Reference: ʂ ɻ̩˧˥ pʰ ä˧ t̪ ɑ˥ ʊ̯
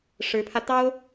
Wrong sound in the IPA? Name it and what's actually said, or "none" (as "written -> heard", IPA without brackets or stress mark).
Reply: none